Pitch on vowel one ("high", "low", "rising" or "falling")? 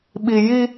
low